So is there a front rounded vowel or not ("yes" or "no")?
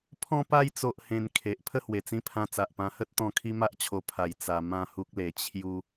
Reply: no